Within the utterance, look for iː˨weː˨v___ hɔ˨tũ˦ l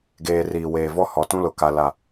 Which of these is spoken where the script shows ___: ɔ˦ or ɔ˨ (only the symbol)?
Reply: ɔ˦